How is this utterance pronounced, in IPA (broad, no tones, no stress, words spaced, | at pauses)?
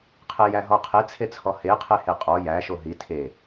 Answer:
qʰejæɦɔqʰe t͡sʰet͡sʰɔhe qʰeheqʼɔ jæ ʃoɦi tʰe